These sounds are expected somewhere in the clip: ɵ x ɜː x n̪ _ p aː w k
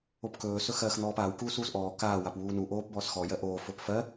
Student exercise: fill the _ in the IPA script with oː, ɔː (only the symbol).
ɔː